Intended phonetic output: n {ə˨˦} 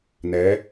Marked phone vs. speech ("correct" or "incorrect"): incorrect